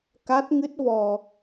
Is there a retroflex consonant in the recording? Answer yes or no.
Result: no